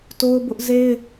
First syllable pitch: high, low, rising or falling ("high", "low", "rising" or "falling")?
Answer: high